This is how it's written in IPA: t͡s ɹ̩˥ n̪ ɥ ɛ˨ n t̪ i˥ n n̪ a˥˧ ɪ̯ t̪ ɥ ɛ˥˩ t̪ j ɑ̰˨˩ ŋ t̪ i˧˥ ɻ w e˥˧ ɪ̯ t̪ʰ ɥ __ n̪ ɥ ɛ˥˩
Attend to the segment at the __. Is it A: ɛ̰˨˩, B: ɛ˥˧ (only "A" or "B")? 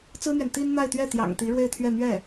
B